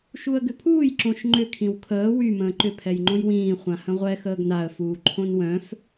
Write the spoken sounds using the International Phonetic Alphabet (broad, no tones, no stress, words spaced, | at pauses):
ʃuə̯ɡʏpʰuːj ǁõʃŋ͡ǃʏ kʰĩwkʰəː wy mə̃ːǃʏ pʰɛjŋ͡ǃõjwĩː χʷãhə̃ʁʷɛ xəːɡnaə̯ fuːǃʰõnwœ̃f